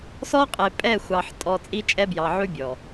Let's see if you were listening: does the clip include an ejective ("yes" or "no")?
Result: yes